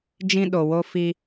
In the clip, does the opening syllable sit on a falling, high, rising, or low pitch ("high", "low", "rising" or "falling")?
high